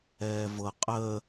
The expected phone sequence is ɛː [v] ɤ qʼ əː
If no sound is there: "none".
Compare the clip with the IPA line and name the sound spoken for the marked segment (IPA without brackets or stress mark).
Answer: v